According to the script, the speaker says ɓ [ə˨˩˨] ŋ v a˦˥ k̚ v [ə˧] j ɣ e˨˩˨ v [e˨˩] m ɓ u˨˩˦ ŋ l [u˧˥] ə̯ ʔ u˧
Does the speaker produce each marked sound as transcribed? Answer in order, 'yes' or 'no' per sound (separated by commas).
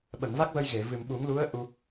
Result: yes, yes, no, yes